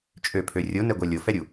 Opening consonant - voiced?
no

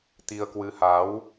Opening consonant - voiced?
no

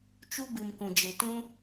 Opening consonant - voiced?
no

